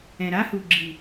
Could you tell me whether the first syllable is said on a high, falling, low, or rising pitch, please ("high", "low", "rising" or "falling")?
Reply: low